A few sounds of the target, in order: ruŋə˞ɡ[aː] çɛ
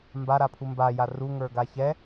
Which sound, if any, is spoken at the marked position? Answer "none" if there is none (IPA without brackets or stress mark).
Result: a